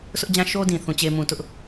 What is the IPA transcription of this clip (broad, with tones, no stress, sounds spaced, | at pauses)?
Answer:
s ʊ˦ ʔ d͡ʑ ã˦ ʃ o˦ d ĩ˨ θ ũ˨ t͡ɕ e˨ m ũ˨ t ʊ˦ ʔ